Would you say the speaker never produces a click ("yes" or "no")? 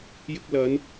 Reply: yes